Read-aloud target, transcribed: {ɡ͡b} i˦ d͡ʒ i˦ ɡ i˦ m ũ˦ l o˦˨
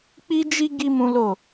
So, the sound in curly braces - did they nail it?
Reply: no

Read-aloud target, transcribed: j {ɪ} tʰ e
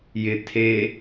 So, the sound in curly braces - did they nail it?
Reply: yes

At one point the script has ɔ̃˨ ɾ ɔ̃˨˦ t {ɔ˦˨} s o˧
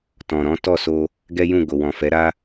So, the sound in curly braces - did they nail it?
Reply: yes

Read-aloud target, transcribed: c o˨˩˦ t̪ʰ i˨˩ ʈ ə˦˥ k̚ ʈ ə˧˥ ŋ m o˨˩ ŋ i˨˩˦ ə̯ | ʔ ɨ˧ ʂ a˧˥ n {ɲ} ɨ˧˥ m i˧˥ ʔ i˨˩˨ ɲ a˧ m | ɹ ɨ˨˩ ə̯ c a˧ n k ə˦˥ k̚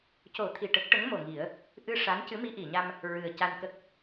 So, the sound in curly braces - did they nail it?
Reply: no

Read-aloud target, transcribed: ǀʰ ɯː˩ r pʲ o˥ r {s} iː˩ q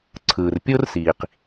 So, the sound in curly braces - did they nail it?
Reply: yes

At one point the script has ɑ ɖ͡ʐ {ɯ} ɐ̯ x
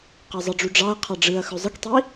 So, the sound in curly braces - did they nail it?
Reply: yes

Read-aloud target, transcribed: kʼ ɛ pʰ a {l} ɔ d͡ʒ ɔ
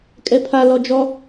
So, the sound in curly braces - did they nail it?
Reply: yes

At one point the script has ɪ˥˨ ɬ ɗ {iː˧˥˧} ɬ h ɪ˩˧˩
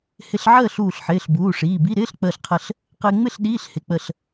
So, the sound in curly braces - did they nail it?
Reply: yes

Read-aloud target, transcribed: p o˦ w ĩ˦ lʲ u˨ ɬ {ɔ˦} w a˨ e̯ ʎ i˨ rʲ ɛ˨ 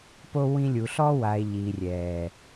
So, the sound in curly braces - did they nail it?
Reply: yes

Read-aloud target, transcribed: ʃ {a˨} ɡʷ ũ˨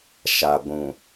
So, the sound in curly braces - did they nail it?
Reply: yes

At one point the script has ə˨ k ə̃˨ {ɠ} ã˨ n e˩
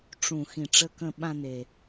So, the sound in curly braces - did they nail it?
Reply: no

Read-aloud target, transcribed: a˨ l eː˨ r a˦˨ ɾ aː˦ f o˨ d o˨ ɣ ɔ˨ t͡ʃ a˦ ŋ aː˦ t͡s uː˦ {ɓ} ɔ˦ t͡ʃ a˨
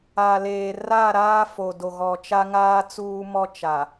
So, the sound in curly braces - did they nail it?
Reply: no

